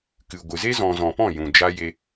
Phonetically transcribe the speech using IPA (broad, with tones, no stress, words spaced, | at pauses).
kɨ˨ ɡʷɨ˨ze˦ zɔ̃˧ zɔ̃˨pɔ̃˦˨ jũ˨d͡ʒa˦ je˧